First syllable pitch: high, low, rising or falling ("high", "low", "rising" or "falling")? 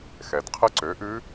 low